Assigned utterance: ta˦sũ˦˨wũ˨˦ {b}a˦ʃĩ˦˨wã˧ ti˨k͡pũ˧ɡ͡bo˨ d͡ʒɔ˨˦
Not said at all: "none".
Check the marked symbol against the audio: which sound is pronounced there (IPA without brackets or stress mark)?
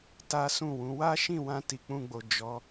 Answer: w